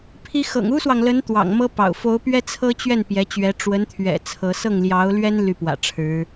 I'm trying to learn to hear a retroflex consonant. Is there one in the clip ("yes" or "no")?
yes